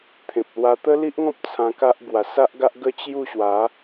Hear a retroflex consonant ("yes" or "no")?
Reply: no